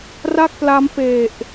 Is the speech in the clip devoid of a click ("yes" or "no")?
yes